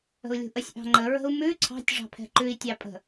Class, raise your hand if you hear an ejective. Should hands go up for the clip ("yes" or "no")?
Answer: yes